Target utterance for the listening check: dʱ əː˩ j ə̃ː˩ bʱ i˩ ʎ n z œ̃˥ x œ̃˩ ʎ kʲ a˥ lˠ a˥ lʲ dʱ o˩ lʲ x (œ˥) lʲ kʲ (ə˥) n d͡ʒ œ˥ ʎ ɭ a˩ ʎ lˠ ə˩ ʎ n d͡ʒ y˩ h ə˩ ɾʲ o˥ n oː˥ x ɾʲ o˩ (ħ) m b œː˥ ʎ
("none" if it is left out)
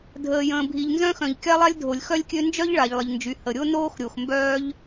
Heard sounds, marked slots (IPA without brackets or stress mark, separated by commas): œ˥, ø˥, x